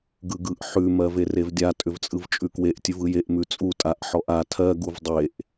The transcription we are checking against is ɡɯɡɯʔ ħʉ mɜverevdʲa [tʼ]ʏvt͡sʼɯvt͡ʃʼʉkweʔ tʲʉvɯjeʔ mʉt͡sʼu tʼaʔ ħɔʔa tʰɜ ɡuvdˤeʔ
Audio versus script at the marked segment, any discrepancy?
no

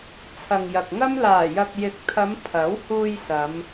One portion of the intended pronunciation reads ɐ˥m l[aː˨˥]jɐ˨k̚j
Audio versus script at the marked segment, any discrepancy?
yes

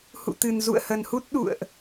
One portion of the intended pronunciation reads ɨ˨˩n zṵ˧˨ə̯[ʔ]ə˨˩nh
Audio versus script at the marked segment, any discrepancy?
yes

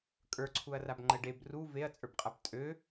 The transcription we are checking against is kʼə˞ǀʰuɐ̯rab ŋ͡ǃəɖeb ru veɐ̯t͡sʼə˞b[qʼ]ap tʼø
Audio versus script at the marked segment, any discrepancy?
no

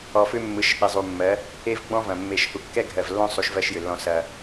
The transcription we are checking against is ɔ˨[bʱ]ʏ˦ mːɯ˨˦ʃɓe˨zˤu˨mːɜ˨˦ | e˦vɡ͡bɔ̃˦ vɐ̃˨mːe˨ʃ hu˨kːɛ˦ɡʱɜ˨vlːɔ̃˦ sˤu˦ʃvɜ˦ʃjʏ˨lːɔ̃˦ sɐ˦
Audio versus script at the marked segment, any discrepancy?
yes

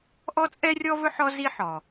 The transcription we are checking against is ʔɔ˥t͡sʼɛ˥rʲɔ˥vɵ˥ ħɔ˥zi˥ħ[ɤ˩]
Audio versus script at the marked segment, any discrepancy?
yes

